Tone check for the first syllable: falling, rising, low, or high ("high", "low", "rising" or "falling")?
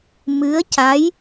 rising